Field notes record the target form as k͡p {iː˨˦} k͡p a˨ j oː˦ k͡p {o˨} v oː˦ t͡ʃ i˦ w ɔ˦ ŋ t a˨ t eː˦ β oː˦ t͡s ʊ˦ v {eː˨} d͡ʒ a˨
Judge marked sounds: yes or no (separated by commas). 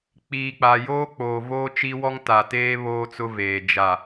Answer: no, no, yes